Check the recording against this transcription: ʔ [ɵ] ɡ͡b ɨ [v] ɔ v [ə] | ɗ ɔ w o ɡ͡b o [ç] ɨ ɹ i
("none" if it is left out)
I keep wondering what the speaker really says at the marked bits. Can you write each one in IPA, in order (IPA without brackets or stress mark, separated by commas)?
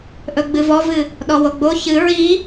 ɵ, v, ɨ, ç